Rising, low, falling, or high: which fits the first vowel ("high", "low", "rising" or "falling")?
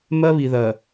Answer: high